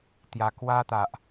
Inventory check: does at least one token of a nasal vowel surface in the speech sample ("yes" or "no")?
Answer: no